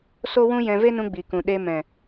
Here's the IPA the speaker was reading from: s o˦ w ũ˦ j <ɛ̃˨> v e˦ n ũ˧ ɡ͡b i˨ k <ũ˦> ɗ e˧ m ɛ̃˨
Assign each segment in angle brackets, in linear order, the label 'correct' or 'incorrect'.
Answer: incorrect: ɛ̃˧, incorrect: ũ˨

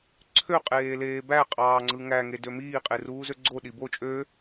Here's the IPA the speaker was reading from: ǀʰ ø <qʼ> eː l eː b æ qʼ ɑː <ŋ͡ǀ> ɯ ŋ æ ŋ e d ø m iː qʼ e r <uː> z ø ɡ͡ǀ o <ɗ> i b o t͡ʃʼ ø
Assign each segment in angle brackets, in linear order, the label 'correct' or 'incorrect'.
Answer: correct, correct, correct, correct

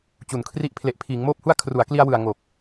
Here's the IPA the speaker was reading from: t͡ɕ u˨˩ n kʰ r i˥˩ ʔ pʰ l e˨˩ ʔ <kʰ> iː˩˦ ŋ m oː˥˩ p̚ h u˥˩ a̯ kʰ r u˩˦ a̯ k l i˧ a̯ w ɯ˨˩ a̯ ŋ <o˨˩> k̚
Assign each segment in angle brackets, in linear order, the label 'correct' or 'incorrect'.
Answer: incorrect: pʰ, correct

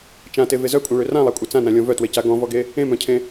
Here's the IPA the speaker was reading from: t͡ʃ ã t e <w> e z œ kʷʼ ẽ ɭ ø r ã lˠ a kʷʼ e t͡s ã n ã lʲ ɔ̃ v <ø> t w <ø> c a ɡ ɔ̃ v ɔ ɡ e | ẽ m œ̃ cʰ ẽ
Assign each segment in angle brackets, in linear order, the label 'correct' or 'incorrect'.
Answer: incorrect: v, incorrect: œ, incorrect: e

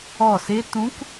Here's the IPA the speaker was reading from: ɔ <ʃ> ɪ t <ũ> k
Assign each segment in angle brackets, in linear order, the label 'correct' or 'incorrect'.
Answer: incorrect: s, correct

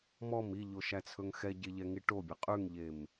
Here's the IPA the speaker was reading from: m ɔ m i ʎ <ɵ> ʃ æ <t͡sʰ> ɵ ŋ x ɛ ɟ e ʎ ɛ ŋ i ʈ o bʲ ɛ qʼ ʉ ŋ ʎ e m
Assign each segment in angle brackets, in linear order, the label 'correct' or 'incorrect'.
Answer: incorrect: o, correct

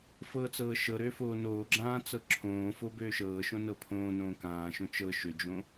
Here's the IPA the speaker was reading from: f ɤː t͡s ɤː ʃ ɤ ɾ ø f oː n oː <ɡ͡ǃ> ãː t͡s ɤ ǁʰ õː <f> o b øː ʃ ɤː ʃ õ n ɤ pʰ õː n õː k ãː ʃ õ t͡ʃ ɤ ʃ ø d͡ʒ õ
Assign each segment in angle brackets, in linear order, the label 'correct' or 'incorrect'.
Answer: incorrect: ɡ͡ǁ, correct

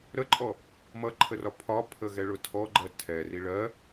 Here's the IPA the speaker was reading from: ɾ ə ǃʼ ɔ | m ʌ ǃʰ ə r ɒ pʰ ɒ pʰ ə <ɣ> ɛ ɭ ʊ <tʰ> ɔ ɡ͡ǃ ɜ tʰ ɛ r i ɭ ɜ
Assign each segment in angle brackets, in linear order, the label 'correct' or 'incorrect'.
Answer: correct, correct

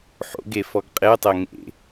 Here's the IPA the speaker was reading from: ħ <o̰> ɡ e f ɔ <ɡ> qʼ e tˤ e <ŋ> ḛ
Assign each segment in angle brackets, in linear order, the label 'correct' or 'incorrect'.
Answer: correct, correct, correct

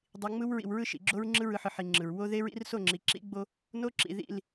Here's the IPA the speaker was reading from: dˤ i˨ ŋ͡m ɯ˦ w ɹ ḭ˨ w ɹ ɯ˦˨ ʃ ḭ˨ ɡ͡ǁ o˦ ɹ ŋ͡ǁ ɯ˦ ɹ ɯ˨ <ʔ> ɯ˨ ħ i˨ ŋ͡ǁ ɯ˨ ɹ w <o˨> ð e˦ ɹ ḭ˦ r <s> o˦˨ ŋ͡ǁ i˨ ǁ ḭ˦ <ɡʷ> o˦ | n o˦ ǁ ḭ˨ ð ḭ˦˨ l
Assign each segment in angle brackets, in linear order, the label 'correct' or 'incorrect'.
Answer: incorrect: ħ, incorrect: o˦, correct, incorrect: ɡ͡b

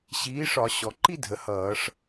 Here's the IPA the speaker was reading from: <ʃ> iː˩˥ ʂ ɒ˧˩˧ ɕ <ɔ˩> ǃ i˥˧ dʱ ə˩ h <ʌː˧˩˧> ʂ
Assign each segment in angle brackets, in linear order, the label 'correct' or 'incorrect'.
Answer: incorrect: ɕ, correct, correct

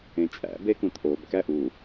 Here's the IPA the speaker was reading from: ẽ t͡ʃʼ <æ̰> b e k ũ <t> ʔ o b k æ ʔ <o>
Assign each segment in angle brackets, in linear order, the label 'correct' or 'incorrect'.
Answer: correct, correct, incorrect: u

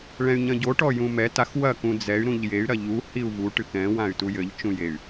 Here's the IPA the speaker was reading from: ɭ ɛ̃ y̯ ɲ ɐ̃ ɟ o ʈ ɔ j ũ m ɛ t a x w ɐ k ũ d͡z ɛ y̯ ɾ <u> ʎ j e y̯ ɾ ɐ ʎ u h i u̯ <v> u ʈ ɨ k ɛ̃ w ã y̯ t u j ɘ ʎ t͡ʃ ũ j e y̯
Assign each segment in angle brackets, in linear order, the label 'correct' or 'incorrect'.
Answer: incorrect: ũ, correct

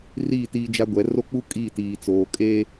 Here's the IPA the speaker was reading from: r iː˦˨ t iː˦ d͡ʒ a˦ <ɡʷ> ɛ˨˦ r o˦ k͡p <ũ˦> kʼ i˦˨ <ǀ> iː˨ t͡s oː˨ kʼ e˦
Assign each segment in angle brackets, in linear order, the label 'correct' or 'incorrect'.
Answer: correct, incorrect: u˦, incorrect: t

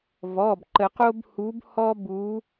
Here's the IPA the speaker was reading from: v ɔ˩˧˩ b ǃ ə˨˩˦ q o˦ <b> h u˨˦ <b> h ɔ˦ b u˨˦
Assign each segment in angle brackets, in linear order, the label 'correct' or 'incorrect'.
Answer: correct, correct

